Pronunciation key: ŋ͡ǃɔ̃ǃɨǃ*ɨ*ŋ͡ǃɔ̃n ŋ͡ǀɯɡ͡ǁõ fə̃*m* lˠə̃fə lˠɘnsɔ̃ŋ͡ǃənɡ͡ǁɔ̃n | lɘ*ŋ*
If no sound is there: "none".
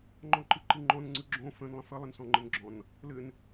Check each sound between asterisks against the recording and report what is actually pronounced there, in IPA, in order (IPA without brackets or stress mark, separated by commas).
ɨ, n, n